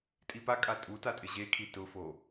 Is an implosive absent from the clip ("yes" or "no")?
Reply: yes